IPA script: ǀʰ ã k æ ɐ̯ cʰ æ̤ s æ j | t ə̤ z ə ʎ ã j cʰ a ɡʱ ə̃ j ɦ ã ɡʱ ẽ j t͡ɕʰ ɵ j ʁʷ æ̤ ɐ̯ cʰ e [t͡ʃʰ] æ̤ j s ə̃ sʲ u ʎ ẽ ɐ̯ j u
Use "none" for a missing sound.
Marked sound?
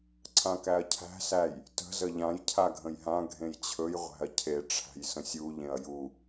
ʈ͡ʂʰ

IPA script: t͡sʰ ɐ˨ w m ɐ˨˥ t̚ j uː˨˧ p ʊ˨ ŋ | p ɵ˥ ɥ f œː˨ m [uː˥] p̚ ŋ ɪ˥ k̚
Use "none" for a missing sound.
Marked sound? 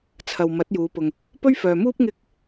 uː˥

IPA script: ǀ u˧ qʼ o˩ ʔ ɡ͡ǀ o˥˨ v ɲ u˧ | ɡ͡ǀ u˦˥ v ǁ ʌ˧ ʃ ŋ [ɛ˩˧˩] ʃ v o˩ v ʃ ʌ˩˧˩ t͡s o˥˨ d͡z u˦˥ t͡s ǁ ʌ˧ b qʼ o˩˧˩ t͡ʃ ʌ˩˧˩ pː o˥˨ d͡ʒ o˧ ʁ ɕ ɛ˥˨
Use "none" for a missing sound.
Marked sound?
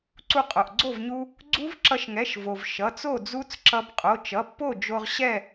ɛ˩˧˩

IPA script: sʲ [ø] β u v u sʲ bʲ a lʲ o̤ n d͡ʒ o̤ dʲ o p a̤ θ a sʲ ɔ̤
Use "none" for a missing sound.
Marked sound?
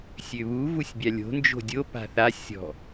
ø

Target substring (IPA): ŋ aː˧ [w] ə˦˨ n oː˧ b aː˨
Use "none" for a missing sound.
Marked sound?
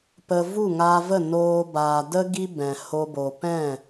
v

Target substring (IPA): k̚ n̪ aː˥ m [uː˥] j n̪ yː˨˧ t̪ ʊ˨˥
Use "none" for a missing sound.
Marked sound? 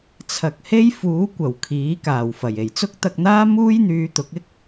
uː˥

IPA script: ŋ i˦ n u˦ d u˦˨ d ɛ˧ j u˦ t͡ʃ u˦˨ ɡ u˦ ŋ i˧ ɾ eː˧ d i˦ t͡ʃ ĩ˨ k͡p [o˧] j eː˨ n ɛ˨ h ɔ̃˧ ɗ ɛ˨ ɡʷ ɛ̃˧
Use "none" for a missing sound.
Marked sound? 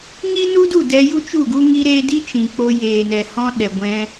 o˧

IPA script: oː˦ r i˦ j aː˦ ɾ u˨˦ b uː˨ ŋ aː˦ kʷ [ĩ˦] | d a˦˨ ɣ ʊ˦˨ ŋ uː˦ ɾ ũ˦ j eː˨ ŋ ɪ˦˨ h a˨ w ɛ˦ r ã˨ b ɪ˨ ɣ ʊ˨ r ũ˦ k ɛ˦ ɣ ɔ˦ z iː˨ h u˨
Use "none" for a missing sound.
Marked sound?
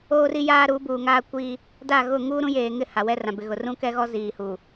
i˦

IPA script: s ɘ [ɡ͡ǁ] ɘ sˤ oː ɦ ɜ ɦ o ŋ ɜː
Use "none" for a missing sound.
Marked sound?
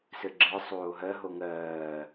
ɡ͡ǁ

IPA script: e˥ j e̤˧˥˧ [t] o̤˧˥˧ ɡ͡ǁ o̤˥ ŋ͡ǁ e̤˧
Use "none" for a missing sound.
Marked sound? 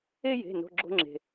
n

